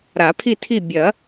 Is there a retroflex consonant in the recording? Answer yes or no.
no